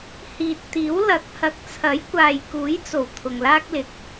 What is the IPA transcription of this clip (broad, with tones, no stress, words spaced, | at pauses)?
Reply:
hiː˨t̚t̪iː˨˥w lɐ˨˥k̚hɐ˨˥k̚ t͡sʰɐ˨˥j kʷaː˨jkuː˨˥jt͡so˨˩w t̪ʰʊ˨ŋlaː˥k̚lɪ˨k̚